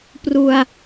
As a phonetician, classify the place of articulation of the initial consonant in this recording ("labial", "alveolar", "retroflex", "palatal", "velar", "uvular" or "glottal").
labial